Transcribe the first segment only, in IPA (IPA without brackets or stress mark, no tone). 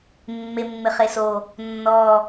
mː